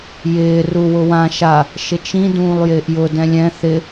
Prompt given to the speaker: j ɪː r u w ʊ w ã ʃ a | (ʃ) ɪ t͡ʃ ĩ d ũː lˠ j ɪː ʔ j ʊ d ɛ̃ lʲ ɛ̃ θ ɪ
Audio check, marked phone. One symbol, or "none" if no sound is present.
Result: ʃ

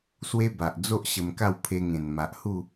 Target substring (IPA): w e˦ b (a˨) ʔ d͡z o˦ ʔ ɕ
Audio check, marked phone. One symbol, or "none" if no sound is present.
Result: a˨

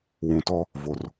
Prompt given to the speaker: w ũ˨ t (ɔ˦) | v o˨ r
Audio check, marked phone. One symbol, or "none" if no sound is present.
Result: ɔ˦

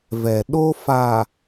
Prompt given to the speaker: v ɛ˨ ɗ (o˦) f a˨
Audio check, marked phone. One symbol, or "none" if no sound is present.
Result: o˦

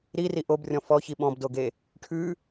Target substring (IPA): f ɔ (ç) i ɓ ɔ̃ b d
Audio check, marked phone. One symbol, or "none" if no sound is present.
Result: ç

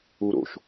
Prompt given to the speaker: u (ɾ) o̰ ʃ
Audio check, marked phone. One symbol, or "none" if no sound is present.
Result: ɾ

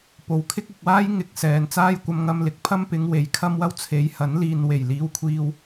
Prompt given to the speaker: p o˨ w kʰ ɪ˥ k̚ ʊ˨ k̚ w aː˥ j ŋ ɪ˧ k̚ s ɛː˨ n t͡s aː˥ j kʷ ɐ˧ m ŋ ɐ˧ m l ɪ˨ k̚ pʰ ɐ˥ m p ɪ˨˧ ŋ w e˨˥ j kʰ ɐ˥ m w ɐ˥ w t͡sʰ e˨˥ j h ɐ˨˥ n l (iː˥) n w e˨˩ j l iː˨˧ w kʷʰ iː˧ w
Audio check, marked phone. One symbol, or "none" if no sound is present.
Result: iː˨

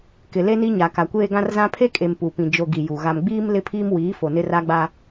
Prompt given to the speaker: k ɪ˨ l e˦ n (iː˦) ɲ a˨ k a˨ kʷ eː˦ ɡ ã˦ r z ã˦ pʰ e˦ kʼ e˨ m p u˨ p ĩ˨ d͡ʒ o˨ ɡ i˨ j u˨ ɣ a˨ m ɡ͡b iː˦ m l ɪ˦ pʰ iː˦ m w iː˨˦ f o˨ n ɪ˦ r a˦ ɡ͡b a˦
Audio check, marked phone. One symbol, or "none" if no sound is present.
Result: i˦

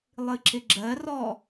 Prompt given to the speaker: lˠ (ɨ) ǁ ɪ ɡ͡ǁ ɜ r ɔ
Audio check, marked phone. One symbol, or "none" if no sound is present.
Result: ɨ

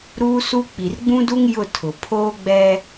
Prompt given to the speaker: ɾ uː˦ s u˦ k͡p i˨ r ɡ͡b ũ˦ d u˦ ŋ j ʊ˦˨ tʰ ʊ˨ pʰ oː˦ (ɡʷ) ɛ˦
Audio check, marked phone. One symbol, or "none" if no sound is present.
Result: ɡ͡b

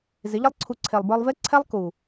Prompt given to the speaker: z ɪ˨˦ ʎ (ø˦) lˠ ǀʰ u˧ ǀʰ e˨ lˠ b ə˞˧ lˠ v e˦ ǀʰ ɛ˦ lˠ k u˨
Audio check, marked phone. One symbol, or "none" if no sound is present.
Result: ə˦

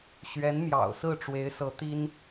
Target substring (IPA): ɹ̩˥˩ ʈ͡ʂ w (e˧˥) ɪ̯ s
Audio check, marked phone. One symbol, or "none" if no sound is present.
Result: e˧˥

